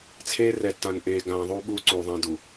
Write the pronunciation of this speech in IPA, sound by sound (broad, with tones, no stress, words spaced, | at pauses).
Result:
t͡sʰeː˦rɛ˨tːã˨n ʔeː˨ɡãː˨ ðˤuː˦ɓuː˦ǀuː˨ ðˤã˦du˨